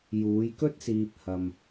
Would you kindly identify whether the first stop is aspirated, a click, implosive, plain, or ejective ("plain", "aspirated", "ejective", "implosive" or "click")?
plain